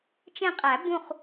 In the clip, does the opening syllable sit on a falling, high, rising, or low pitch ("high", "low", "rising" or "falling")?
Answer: falling